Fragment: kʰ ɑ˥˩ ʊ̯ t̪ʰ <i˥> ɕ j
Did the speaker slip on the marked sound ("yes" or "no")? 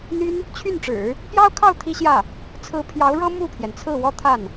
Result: no